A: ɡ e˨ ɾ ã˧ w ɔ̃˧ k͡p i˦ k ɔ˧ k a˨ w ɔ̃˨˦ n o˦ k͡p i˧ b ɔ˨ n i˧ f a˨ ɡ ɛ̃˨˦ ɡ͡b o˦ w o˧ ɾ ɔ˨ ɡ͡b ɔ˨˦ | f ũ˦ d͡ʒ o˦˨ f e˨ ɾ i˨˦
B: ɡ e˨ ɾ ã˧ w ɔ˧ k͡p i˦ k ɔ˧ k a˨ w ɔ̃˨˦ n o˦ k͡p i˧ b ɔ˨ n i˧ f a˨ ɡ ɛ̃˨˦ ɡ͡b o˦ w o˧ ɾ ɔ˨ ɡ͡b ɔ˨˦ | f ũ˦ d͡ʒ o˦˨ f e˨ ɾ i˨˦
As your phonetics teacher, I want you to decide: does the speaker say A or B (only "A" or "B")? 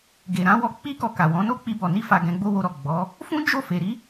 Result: B